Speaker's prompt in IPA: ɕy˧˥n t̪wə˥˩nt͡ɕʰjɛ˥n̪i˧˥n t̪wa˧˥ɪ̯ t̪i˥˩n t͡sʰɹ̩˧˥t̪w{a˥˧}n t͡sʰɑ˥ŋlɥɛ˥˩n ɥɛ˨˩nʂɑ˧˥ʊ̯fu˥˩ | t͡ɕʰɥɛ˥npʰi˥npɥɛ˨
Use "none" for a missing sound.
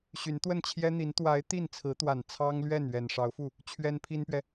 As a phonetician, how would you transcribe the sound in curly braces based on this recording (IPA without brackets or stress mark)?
a˨˩